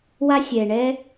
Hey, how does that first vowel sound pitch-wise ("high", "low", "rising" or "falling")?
high